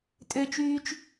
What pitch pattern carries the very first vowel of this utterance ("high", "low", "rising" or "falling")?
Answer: high